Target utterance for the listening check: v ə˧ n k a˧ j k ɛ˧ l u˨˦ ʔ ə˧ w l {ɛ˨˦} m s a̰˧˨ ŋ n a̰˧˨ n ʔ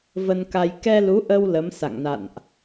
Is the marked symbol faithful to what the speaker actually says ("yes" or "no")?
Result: no